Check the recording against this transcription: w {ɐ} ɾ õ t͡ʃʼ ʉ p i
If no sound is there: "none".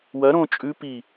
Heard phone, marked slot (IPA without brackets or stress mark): ɐ